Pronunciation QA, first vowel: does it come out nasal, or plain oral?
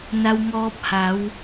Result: oral